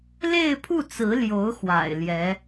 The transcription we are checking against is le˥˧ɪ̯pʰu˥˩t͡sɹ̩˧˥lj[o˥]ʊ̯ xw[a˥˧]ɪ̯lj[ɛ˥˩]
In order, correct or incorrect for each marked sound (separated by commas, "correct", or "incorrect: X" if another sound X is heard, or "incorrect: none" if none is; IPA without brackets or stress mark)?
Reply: incorrect: o˧˥, incorrect: a̰˨˩, incorrect: ɛ˧˥